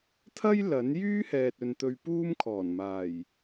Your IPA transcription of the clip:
t̪ʰɐ˥j lɐ˨˥n jyː˥hɛː˨t̚ɵ˨n t̪ɵ˧ɥpuː˥m kʰɔː˨˩nmaː˨˩j

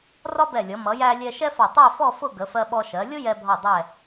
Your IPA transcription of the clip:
rɒ˥bɛ˧˩lʲʌ˩˧ mʌ˩˧jæ˧ lʲɛ˧ʃɛ˥fɒ˧˩ tˤɛ˥˧fɔ˥˧ fʊ˥˧ɡə˩˧fɜ˧ɓɔ˧ ʃɜ˩˧lʲʊ˥ jɛ˧bʱɒ˧˩ dˤɛ˧˩

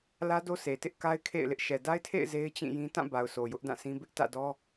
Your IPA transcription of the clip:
lä˦do˦sʰe˨tɪ˦ʔ ka˦ɪ̯ kʰḛ˦˨ɪ̯lɪ˦ʔ ʃɛ˨da˦ɪ̯tʰḛ˦˨ɪ̯ ze˦ɪ̯ t͡ɕĩ˦˨jĩ˦ tã˦˨ba˨ʊ̯ so˨jʊ˦ʔdã˦˨sʰĩ˦ bɪ˦ʔtä̰˦˨dɔ˦

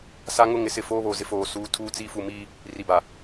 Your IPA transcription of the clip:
sa˦ŋʊ˦ ŋɪ˨˦sɪ˦˨ foː˦βoː˨zɪ˦ foː˨ suː˨tʰuː˦˨t͡siː˦ fu˨miː˦ | ri˨ba˨

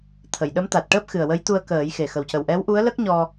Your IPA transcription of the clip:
t̪ʰə˨˩˨jɗə˧˥m t̪a˨˩t̚ʈəː˦˥p̚ xɨ˨˩ə̯wə˧˥j t̪u˧ə̯kəː˨˩˦jxe˨˩ xə˨˩wcə˨˩w ʔɛ˧˥wʔu˧˥ə̯ lə˦˥k̚ɲɔ˧

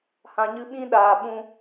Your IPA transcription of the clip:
hã˨ɲɨ˧ ɓĩ˦ ɗaː˨ ɓũ˧

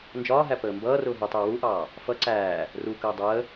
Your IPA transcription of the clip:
nd͡ʒɒːɦæ pəːmbʌːrʊː ɦutˤʊː wuʔɑː | fʌ ǀæː | rukəː dˤəː

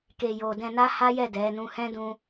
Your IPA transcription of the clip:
ke˧jo˧ dɛ̃˧na˦ha˦jɛ˦˨ dɛ˨˦nũ˦ hɛ̃˦dũ˧

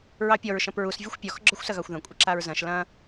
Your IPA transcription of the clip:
ɹɑpʲɔɹ ʃɐ̃pɹus vʲɔxʷpʲɔx ɡ͡ǁɔxʷsɐɣɑxʷðɐ̃ kʷʼəǁaɹzɐ̃ʃ lɐ̃

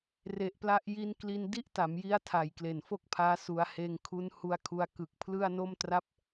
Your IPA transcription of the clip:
re˨˩ʔpla˦˥ʔji˦˥n kli˧ndi˥˩ʔta˩˦mji˦˥a̯ tʰa˨˩jkle˨˩n fo˥˩k̚pʰaː˦˥ su˧a̯ heː˧ŋkʰu˦˥nhu˧a̯kʰu˧a̯ kɯ˨˩k̚pʰlɯ˥˩a̯no˥˩m tra˥˩p̚

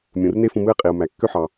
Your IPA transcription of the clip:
mʲũ˩r ne˥fũ˧ mɯ˥ɪ̯qʼi˩ʊ̯mæ˩ kːø˥ħɑ˩

